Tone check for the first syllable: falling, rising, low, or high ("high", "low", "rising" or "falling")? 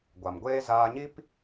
low